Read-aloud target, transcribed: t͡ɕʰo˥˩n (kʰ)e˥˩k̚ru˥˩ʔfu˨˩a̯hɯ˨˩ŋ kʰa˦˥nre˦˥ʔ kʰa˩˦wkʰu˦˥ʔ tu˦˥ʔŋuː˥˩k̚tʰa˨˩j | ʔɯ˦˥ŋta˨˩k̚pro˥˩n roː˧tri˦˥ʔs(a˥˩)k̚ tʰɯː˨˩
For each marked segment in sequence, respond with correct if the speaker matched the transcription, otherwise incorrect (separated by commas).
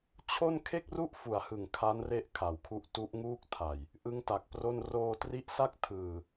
correct, correct